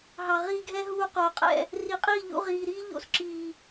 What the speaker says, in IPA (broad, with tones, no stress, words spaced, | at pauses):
ɦɑ˨ʁiː˧ɡʱɛ˦ɦuː˧ qoː˨qʼɛ̰˦˨ | ri˨˦qʼiː˦˨ʎṵ˧ ʁiː˨ɾiː˧ʎo̰˧sǁiː˨